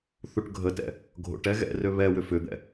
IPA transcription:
θ u ʈ ɡʱ ə t ɛ̰ | ɡʱ o̰ ʈ ɛ ɣ ɛ̰ r ø β ɛ w ʏ f ʏ d̪ ɛ̰

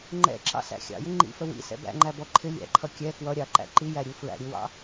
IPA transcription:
ŋ͡ǃ ɛ̰ ǁ ɑ̰ s æ̰ xʲ ɑ̰ j ɪ ŋ͡ǃ ḭ f ə w ḭ s ɛ̰ b æ̰ ŋ͡ǃ æ b ɔ ǃʰ ɪ lʲ æ̰ ǃʰ ʌ kʲ ɛ k w ʌ ɾʲ ɑ ǃ æ̰ ǃ i j æ ɾʲ u f ɹ æ̰ ɾʲ u w ɑ̰

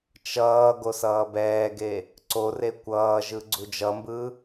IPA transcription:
t͡ʃ ʌː ɡ o s ʌː b ɛː ɡ e | ǀ o r e kʷ ʌː ʒ ɯ ɡ͡ǀ u d͡ʒ ʌ m b ɯ

